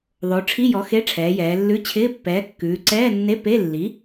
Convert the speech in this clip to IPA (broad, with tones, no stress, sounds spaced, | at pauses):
ðˤ o˩˧ ʈ͡ʂʰ i˧˥˧ j ɔ˩˥ x e˧˥˧ ʈ͡ʂʰ ɛː˩˧ j ɛː˩˧ lː ʉ˧˥˧ t͡ɕʰ ɪː˧˥˧ pː ɛː˩˥ kː ʉː˩˧ ǀ ɛː˧˥˧ nː e˧˥˧ p e˧˥˧ lː i˩˥